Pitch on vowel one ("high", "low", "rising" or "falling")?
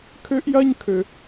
high